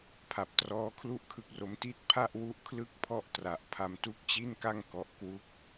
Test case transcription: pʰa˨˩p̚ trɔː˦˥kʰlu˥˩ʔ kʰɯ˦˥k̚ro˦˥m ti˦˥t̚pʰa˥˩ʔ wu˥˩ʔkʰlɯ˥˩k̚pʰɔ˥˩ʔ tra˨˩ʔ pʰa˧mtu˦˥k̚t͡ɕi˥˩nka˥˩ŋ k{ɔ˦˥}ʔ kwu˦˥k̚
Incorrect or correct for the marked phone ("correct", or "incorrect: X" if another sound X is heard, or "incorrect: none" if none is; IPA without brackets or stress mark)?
correct